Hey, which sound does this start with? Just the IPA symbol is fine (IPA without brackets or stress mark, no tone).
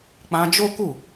k͡p